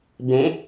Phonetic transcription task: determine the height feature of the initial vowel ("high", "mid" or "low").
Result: mid